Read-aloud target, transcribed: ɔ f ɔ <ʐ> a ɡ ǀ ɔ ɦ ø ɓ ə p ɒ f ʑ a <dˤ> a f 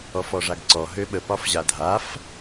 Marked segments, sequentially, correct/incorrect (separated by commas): correct, incorrect